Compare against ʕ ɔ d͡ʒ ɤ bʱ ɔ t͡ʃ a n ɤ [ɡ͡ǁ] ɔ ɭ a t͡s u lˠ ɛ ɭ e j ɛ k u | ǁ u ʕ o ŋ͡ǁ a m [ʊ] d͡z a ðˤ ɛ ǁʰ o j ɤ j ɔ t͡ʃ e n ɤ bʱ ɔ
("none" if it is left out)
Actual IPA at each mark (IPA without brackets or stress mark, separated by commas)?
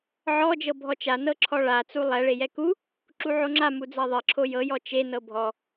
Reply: ǁʰ, u